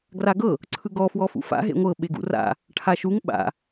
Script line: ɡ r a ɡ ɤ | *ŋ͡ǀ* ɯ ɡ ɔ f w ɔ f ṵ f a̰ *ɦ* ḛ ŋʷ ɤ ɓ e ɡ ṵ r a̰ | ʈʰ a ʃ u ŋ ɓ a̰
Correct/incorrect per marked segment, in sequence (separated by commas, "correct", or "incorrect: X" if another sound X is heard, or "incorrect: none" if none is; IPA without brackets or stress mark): incorrect: ǀʰ, correct